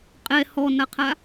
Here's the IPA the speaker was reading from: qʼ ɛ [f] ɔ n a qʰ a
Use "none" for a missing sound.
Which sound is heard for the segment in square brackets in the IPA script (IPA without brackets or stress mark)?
h